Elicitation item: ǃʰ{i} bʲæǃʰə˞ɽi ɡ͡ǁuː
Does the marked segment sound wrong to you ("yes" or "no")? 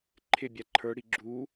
yes